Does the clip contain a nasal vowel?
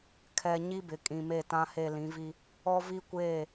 yes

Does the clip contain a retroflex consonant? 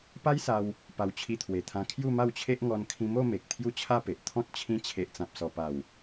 no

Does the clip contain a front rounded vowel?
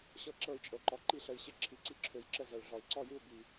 yes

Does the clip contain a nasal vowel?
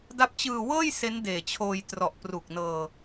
no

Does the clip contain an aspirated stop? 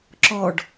no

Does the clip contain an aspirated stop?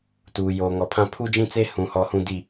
yes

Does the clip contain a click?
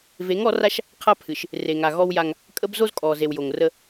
no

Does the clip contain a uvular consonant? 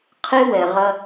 yes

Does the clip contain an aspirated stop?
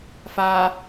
no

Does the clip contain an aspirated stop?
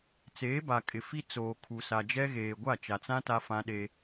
yes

